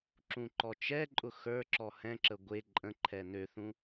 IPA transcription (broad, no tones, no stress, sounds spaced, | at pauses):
ǁ ũ ǃ ɔ t͡ʃ ɛ ǃʼ ʊ x ə˞ ǁ ɔ h ɛ̃ ǁ ə ɡʷ e ǃʼ ə̃ ǃʰ ɛ n ø θ ũ